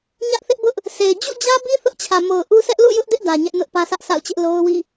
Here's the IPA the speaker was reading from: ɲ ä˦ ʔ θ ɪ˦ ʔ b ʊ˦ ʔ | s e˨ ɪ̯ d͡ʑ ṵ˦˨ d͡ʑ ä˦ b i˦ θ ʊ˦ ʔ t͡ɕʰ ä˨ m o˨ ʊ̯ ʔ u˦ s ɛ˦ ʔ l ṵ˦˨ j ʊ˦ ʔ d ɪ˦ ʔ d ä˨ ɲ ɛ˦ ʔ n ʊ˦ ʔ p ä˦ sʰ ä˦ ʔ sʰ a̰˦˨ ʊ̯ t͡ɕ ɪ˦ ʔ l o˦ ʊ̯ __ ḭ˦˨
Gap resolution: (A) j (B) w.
B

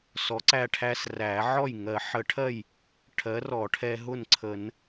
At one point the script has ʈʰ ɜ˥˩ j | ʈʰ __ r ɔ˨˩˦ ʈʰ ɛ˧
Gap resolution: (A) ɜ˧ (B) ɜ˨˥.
B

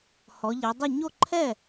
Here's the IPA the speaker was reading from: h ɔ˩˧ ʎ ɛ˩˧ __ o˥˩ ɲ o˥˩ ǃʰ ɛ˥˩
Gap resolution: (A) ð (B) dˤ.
B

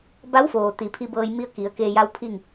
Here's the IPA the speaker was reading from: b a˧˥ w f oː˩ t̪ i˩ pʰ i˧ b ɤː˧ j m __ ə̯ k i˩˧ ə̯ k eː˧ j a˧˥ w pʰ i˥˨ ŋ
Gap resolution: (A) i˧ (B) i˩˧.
A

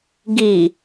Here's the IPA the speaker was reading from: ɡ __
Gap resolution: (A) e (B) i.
B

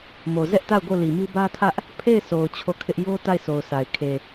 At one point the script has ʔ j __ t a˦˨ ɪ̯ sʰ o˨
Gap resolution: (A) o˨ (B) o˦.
B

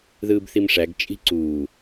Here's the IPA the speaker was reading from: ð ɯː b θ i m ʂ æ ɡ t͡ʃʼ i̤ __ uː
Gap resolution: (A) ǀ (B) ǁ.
A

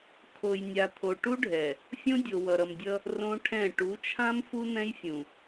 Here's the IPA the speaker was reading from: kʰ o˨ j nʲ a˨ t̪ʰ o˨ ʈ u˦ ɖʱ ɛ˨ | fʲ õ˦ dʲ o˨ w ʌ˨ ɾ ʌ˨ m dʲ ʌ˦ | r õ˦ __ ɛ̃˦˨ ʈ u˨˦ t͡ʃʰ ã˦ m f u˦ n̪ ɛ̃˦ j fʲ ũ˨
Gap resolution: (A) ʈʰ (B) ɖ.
A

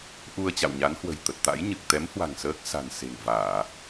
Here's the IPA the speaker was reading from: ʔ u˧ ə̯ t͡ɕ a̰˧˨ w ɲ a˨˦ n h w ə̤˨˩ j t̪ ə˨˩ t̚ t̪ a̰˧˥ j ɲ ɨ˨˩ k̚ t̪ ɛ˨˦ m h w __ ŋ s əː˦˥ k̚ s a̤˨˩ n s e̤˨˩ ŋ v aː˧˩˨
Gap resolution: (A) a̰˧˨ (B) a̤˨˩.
B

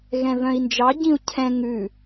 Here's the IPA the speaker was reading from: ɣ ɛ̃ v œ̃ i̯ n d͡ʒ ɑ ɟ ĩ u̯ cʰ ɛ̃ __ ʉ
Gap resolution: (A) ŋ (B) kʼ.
A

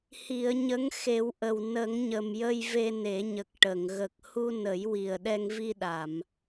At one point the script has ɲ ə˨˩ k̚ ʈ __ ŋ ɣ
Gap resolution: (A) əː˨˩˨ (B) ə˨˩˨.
B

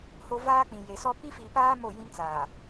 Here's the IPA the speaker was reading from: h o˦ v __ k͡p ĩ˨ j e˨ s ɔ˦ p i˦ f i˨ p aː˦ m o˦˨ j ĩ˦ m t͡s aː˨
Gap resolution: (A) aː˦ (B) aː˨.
A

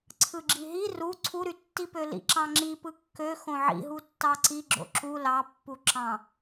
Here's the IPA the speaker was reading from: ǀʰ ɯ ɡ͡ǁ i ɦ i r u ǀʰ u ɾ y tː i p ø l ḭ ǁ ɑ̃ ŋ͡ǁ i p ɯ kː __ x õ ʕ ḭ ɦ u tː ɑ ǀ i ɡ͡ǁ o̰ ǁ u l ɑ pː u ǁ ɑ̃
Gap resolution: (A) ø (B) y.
A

